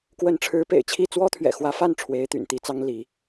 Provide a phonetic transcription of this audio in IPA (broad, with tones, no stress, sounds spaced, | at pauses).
k w ə˧˥ n ʈ͡ʂʰ ɻ̩˧˥ p ḛ˨˩ ɪ̯ t͡ɕʰ i˥˩ t͡s w ɔ˥ t̪ʰ ɥ ɛ̰˨˩ x w ä˧˥ f a˥˩ n ʈ͡ʂʰ w e˧˥ ɪ̯ t̪ y̰˨˩ n t̪ i˧˥ t͡s ɑ˥ ŋ l i˧˥